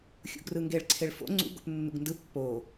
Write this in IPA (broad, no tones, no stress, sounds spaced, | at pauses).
xʲ ṵ ɡ r ɯ ŋ ɡ e ɭ ǀʰ e ɭ f o̰ ŋ͡ǀ ṵ ɡ o̰ p nː ṵ ɡ n d ɯ pː o